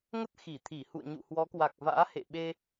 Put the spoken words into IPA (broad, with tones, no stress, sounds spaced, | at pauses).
ŋ ə˦˥ t̚ x i˧˩ t̪ʰ i˧˩ h ṵ˧˨ ə̯ ɲ ṵ˧˨ h w ɔ˨˦ k w a˨˩ k̚ v a̰ː˧˥ h ḛ˧˨ ɓ e˧